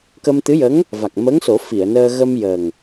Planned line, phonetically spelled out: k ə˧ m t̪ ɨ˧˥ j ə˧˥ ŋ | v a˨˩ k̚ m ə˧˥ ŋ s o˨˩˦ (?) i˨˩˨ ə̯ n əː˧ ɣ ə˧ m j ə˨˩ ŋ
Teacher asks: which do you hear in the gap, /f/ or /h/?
f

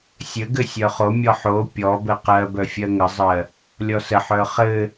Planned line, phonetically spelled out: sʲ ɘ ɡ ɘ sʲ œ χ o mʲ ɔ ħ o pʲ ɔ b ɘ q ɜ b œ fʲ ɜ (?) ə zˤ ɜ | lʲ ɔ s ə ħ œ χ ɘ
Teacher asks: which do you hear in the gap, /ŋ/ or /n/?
ŋ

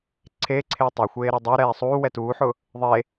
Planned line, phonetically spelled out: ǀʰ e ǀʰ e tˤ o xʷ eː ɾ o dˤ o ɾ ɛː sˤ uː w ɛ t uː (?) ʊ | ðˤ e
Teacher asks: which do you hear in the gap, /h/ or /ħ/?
ħ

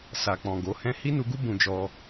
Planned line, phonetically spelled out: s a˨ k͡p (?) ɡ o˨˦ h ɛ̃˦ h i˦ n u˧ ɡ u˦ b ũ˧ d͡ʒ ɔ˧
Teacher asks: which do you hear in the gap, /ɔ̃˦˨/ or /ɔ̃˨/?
ɔ̃˨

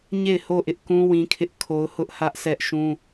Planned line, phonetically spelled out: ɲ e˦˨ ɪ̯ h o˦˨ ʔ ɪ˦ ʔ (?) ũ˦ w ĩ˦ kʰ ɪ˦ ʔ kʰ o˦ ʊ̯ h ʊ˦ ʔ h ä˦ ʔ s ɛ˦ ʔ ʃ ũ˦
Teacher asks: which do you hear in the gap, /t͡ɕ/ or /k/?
k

